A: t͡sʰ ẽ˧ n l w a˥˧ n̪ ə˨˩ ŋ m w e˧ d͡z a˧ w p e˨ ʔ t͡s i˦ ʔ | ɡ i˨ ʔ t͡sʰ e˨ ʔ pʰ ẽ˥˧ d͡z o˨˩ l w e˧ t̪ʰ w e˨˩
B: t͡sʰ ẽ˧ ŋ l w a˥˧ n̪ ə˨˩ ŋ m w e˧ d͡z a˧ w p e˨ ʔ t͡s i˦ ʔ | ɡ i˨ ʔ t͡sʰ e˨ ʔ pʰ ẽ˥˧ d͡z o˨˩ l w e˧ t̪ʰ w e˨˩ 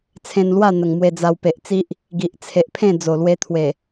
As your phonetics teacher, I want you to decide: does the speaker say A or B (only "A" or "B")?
A